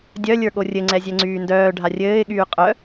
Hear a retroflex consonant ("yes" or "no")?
yes